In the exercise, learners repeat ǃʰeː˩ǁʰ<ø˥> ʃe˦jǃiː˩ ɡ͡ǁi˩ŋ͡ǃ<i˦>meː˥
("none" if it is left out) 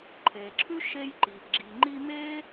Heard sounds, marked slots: ʉ˥, i˦

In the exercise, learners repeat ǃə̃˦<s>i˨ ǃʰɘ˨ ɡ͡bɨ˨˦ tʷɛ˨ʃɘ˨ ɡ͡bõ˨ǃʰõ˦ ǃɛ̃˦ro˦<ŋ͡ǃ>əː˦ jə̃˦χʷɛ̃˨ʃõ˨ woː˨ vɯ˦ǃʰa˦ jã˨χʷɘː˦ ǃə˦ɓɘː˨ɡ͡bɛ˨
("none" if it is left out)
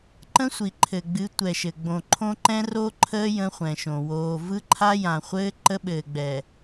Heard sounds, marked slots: sʷ, ǃʰ

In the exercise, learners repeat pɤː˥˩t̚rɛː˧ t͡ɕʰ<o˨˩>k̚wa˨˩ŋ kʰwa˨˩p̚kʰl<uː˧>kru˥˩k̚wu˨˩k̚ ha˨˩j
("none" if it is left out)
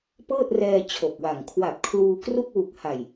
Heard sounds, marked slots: o˨˩, uː˧

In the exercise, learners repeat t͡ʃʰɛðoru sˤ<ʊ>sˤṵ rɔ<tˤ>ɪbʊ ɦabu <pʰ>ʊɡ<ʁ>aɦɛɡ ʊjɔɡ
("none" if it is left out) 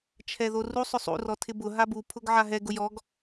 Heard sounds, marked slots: ʊ, tʰ, pʰ, ʕ

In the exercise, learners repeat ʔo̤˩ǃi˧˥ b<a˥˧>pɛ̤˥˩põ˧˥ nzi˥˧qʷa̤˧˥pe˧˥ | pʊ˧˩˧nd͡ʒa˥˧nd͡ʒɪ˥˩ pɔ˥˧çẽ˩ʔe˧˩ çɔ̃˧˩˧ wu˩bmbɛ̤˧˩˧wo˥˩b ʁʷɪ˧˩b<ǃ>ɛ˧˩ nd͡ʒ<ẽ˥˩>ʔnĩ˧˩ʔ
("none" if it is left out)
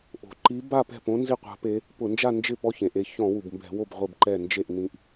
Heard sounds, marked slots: a˥˧, ǃ, e˥˩

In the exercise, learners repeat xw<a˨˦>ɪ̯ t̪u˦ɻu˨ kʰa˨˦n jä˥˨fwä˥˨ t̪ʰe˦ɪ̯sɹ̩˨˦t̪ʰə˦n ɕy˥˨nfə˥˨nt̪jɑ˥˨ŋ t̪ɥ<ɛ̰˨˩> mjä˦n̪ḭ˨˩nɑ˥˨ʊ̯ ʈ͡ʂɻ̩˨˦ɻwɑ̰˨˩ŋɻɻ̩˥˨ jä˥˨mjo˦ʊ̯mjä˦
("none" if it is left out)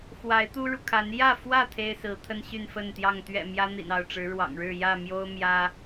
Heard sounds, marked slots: a˨˦, ɛ̰˨˩

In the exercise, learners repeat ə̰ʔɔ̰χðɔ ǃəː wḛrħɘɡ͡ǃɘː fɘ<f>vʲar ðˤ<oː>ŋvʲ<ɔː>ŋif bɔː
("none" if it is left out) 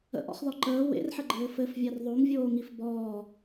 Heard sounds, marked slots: f, o, oː

